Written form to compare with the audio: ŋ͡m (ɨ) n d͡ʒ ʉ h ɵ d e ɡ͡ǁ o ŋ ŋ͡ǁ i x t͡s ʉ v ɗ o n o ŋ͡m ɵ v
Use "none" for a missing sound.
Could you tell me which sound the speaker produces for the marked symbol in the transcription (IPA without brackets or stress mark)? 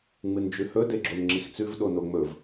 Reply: ɨ